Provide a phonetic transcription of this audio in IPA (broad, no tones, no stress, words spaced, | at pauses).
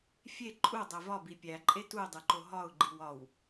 fʲe ǃʼudˤe vɒbi pʲæǃʼe tuɪ̯dˤiǃo ɦɒʊ̯ɡ͡ǃiw ɒw